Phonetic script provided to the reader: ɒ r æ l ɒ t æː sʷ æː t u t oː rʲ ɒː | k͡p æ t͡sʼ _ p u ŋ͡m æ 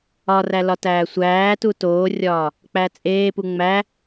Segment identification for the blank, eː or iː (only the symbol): eː